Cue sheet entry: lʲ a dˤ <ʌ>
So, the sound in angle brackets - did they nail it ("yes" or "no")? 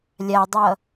yes